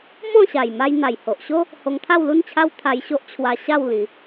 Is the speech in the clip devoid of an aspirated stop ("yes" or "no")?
no